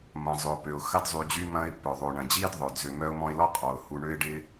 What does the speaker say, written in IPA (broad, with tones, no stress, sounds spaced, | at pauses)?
m ɐ̃˩ zˤ ø˩ ʊ̯ p ø˩ ʊ̯ x ɐ˦ d zˤ y˨ d͡ʑ y˦ m ɐ̃˦ ɪ̯ p œ˩ ðˤ o˩ ɳ ɐ̃˩ d͡ʑ iː˥ d ðˤ œ˩ d z ø˨ m œ˦ ʊ̯ m ɔ̃˦ ɪ̯ l ɔ˥ qʼ ɔ˩ ʊ̯ h u˨ ɳ ø˦ ɪ̯ ɖ ɪ˦